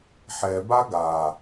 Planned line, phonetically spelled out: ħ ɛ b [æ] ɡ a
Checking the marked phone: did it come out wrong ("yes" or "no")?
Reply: yes